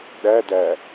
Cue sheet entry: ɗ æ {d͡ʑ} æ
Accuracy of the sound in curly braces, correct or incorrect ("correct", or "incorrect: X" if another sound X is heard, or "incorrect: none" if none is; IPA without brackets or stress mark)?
incorrect: d